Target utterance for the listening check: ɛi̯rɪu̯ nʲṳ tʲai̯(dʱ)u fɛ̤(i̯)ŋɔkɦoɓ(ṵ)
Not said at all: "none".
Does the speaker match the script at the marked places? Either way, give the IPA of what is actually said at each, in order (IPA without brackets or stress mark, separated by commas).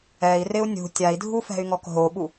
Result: dʱ, y̯, u